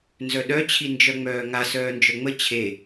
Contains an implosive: yes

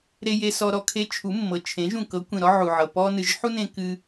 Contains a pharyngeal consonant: yes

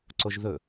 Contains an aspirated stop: no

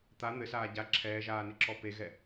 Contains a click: yes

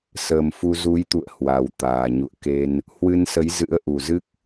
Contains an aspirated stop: no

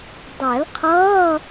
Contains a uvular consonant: yes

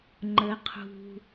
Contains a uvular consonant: yes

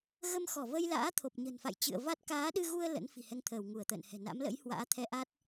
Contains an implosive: yes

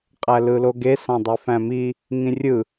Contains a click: no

